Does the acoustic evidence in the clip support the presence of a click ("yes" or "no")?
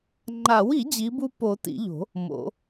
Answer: yes